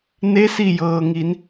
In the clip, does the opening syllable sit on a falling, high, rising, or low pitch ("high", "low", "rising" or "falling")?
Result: rising